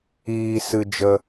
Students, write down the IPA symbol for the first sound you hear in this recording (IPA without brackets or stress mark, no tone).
iː